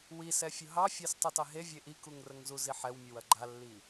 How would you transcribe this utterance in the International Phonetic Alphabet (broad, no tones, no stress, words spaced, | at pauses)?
wisɛ fʲʊɦɑfʲɑs tˤutɑɦe vʲeʔikuŋrəŋ zuziħɛwmʲəw ɐɡ͡ǃalːi